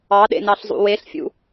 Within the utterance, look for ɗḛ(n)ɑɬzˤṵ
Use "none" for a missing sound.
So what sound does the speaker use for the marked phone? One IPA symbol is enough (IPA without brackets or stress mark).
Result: n